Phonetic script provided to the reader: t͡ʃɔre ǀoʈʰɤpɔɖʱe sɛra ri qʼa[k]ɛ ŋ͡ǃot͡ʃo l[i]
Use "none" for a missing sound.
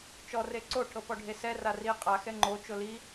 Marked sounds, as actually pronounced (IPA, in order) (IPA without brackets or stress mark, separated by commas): x, i